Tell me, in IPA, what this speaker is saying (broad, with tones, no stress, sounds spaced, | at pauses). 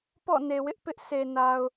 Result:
p ɔ̰˦˨ n e˨ w ɪ˦ ʔ p ɪ˦ ʔ s e˨ n a˨ ʊ̯